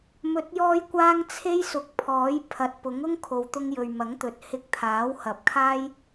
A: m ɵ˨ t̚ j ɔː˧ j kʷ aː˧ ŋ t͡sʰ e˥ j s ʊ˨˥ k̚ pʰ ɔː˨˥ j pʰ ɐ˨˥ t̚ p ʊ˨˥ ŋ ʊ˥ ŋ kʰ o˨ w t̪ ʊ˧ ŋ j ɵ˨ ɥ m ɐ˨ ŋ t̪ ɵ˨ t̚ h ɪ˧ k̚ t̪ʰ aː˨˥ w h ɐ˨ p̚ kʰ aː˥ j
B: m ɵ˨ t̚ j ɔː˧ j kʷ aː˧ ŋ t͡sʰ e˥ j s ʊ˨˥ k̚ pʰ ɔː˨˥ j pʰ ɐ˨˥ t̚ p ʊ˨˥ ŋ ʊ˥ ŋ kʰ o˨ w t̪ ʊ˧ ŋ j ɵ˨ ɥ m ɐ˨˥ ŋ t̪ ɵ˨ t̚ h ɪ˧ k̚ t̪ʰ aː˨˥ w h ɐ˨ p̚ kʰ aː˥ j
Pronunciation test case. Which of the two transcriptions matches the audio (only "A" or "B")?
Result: B